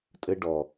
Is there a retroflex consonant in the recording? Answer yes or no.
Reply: yes